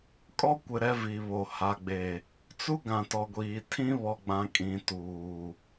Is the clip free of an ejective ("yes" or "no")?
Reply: no